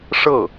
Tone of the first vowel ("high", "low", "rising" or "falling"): falling